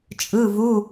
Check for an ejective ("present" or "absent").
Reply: present